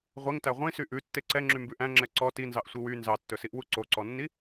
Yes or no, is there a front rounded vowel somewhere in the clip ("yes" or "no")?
yes